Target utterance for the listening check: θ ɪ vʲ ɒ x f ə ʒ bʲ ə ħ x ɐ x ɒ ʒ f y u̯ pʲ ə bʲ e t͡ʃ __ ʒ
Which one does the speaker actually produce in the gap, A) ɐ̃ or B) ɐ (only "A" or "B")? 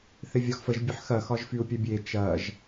B